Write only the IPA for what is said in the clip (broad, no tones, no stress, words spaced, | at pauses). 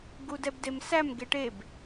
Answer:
ɡudɛbdemsæm ɡeʈeb